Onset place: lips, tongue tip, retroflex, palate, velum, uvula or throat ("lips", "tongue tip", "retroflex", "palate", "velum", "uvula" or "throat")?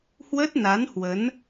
throat